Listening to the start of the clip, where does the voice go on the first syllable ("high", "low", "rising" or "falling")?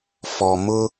low